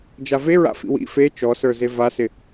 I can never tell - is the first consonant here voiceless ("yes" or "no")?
no